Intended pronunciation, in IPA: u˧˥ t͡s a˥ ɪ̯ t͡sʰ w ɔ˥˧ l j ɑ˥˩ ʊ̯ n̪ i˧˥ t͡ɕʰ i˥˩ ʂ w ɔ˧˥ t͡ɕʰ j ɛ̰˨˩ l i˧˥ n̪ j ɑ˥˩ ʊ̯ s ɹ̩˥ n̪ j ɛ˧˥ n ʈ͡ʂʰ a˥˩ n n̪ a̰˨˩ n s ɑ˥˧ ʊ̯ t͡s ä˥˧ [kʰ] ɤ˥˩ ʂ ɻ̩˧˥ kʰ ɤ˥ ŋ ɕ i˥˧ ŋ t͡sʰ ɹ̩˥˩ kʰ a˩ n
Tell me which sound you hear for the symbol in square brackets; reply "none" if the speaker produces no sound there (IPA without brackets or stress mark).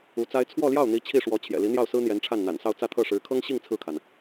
t̪ʰ